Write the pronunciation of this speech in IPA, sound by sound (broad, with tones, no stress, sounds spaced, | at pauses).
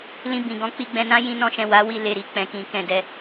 l ĩ˧ b ĩ˨ ɡ ɔ̃˧ k͡p i˧ ɡ͡b ɛ̃˧ n ã˦ j ĩ˧ n ɔ̃˧ ʃ ɛ̃˨ w a˨˦ w i˧ l e˨ ɾ i˨ k͡p ɛ̃˨ k ĩ˨ k ɛ̃˨ d ɛ˧